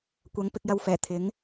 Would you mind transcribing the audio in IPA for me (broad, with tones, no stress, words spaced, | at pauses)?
kʷɐ˨˥ŋ pɪ˧k̚jɐ˧wfɛː˨˩ t̪ʰɪ˨˥ŋ